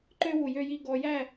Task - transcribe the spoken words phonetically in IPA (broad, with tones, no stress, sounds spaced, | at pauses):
ǃ ø˥ w u˧˩ j ø˥˧ j i˥˧ ɡ ɔ˧ j æ˥˧